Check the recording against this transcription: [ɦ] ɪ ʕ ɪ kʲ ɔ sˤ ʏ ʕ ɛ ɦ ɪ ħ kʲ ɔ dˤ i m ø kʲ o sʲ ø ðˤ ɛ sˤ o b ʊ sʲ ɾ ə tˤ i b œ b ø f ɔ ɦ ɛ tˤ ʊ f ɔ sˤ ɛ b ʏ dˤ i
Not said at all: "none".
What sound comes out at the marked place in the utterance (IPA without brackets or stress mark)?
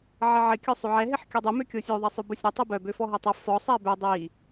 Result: ʕ